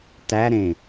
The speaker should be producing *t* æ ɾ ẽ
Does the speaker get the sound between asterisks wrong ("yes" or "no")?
no